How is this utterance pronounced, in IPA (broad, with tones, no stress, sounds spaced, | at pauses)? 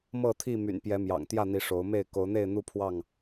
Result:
m ɤ˥˨ t̪ʰ i˥˨ m y̰˨˩ n p j ɛ˨˦ m j ɑ̰˨˩ ŋ t̪ j ä˥˨ n̪ i˨˦ ʂ o˨˦ ʊ̯ m e˥˨ ɪ̯ k o˨˦ ʊ̯ n̪ e˥˨ ɪ̯ n̪ u˦ pʰ w ɑ˥˨ ŋ